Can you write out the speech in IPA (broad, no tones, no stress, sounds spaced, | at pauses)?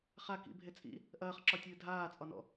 χ a k ḭ bʱ e t͡sʼ ḭ | ʔ ɐː χ ǁ ɒ tʲ ɨː dʱ aː t͡sʼ ɒ n ɔ̰